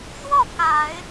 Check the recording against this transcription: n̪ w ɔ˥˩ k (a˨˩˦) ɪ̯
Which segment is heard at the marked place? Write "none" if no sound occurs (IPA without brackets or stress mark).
a˨˩˦